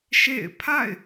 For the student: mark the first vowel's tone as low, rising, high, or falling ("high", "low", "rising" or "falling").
falling